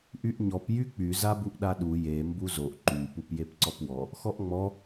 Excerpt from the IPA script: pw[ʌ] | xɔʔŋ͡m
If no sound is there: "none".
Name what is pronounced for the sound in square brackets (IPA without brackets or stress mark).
ɔ